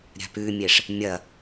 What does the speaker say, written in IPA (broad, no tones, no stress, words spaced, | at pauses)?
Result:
ɾʲa̤pʉmʲeʂ | mʲɐ